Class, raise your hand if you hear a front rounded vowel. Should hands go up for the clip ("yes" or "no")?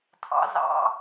no